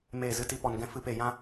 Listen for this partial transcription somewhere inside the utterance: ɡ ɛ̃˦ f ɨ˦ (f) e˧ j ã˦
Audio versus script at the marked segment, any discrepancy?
yes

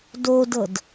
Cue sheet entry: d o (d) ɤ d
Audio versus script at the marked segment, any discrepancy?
no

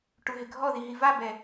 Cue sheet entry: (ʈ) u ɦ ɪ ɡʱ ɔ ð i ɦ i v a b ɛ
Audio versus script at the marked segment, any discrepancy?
no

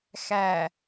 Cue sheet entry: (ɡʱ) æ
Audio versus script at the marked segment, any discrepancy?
yes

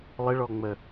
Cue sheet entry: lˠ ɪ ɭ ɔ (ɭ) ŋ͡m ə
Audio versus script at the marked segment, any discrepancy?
yes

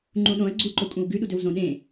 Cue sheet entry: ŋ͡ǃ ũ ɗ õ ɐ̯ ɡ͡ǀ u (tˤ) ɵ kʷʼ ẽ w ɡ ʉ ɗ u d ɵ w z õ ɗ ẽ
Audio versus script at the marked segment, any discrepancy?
yes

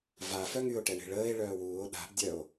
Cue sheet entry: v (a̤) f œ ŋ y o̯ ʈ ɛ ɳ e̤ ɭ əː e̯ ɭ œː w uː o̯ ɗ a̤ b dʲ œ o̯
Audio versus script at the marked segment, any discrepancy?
yes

